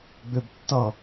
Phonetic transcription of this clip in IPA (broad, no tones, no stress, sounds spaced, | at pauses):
ɡ͡b ʏ b tː ʌ